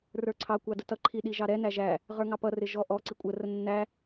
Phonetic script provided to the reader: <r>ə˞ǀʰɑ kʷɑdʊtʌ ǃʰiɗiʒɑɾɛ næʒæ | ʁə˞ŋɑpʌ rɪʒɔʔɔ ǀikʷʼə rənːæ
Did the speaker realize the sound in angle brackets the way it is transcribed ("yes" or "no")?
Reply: yes